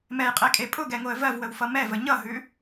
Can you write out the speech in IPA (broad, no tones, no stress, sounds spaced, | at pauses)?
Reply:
m ɛ j qʼ e kʼ e pʼ ʊ ɡ ɛ ŋ o ə̯ v ɜ v w ə w f ʌ m ɛ v ə ɲ ʌ ɦ ʉ